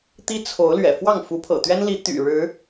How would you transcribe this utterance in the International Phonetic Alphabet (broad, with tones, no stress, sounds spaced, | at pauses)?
t̪ i˦ t͡sʰ o˨˦ ʊ̯ l ɥ ɛ̰˨˩ f w ɑ˥˨ ŋ f u˨˦ pʰ ɤ̰˨˩ t̪ ɥ ɛ˦ n l i˨˦ t̪ y̰˨˩ ɻ ɻ̩˨˦